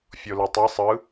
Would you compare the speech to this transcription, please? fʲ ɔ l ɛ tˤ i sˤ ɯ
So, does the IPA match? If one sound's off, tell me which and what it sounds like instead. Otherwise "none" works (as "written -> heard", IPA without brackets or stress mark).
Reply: ɔ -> o